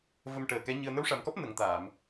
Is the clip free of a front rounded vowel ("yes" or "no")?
yes